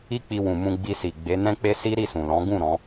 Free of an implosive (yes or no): yes